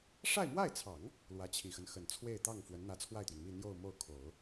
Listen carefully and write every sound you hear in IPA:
ʂ a˥˧ ɪ̯ m w a˥˩ ɪ̯ t͡sʰ ɑ˨˩˦ ŋ | l w ä˧˥ t͡ɕʰ i˨˩ x ə˦ n x ə˨˩ n t͡sʰ w e˥˧ ɪ̯ t̪ ɑ˥˩ ŋ f w ə˧˥ n n̪ ä˧˥ t͡sʰ w a˥˩ ɪ̯ t̪ ɥ ɛ˩ n m i˥˧ n̪ j o˥˧ ʊ̯ m o˥˩ ʊ̯ kʰ o˨˩˦ ʊ̯

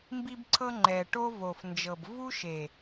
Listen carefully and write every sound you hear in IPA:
m b i˧ b ǀʰ ɤ˧ ŋ͡ǃ ɛ˨ ʈ o˦ v o˨ f n d͡ʒ ɤ˨ b v u˦ ʃ e˨

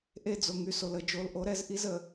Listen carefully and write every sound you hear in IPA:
ʔ e˦˨ d͡z o˨ ŋ y˦ s o˨ l ə˨ d͡ʒ o˨˦ l ʔ o˨˦ ɾ ɛ˦ z ʔ i˦ z ə˨

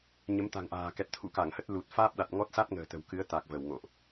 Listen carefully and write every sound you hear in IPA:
ɲ ə˨˦ m t̪ a̤˨˩ ŋ ʔ a̤ː˨˩ k ɛ˨˩ t̚ t̪ʰ ṵ˧˥ k a˧˩ ŋ h ə˦˥ t̚ l u˨˩ t̚ f aː˦˥ p̚ ɗ a˨˩ t̚ ŋ ɔ˦˥ t̚ s a˦˥ t̚ ŋ ə̤ː˨˩ t̪ ə̤˨˩ w k ɨ˨˦ ə̯ t̪ a˨˩ k̚ v ə˧˩ w ŋ o̰˧˨ ʔ

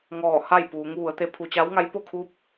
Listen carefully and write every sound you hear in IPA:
ŋ ɔː˧˩ h a˥˨ j p uː˩˧ ŋ ʋ u˩˧ ə̯ t̪ e˧˥ pʰ u˩ t͡ɕ a˧˥ w ŋ a˧˥ j p o˥˨ kʰ u˧˥ p̚

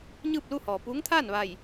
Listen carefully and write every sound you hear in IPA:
ɲ ɯː˥˨ p̚ l u˥˨ h ɔː˩ p uː˧˥ ŋ t̪ʰ aː˥˨ n ʋ a˧˩ j

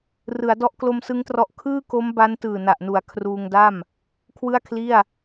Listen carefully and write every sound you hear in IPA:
r ɯ˩˦ a̯ d ɔ˦˥ ʔ k l o˧ m s ɯ˦˥ ŋ t r ɔ˦˥ ʔ kʰ ɯː˥˩ k o˦˥ m b a˦˥ n t ɯː˨˩ n a˨˩ ʔ n u˩˦ a̯ kʰ r uː˧ ŋ d a˥˩ m | kʰ w ɯ˥˩ a̯ kʰ l i˥˩ a̯

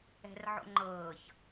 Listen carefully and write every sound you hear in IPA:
ɛ̤ r ʕ o̰ ŋ͡ǃ ɤː ç

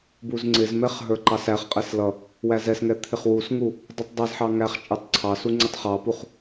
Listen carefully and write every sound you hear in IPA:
b u z ŋ͡ǀ ɪ z m ɛ χ ɦ ə˞ ǃ ɑ s æ χ qʼ ɛ s l ʌ | w æ z ɛ s ŋ ɛ t̪ʰ ɪ χ w u s ŋ u | dˤ u tˤ dˤ ɑ z ħ ɑ ŋ æ χ t͡ʃʼ ə˞ tˤ ǀʰ ɑ s u ŋ͡ǀ ɪ tˤ χ ɑ p u χ

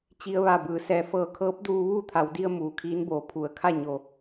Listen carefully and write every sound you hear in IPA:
t͡ɕ i˧ ə̯ ʋ a˧˩ b ɯː˩˧ s ɛː˩ f ɤː˧˩ kʰ ɤː˧˥ p̚ d uː˧ ʋ uː˥˨ t̪ʰ a˩˧ w d i˧ ə̯ m uː˩ kʰ iː˧˥ n b oː˩ pʰ u˩˧ ə̯ kʰ a˥˨ ɲ o˧˩

